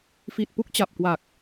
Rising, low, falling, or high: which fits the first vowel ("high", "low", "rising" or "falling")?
low